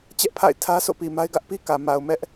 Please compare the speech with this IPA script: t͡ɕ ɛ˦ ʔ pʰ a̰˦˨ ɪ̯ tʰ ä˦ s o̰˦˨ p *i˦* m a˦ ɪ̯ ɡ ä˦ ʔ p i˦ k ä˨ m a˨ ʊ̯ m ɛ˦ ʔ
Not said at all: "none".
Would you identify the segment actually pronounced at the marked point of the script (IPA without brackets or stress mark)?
i˨